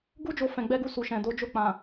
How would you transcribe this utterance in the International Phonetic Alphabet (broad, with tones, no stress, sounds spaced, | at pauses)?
ɡ u˦ d͡ʒ o˧ f ɛ̃˨ ɡ͡b ɛ˧ ɡ u˧ s u˨ ʃ ɛ̃˨ d o˨˦ d͡ʒ o˦˨ k͡p ã˨